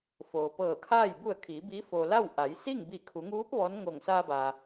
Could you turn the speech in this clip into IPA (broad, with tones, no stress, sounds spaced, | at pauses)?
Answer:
f oː˩ p ɤː˧˩ kʰ aː˥˨ j b u˧˩ ə̯ kʰ iː˩˧ b iː˧˥ f o˩ l a˥˨ w ʔ a˩˧ j s i˥˨ ŋ b i˧˩ kʰ u˩˧ ŋ uː˧˥ p̚ ʋ ɔː˧˥ n ŋ o˧˩ ŋ s aː˧ b aː˩